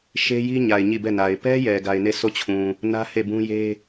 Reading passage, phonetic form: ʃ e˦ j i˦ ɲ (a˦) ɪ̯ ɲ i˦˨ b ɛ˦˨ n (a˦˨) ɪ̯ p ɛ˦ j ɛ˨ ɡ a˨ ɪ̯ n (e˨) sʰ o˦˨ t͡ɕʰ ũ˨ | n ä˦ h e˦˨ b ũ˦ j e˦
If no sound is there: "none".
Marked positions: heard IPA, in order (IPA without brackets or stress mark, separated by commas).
a˨, a˨, e˦˨